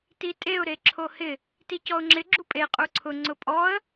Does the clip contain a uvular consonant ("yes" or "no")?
yes